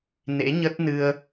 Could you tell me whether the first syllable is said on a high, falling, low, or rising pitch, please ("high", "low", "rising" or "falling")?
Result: rising